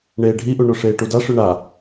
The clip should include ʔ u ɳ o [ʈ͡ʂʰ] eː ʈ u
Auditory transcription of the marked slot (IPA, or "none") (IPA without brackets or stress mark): ʂ